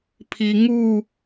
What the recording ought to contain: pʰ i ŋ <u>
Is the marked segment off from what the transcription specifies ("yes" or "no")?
no